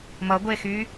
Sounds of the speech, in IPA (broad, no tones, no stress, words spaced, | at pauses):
mʌɡʷexy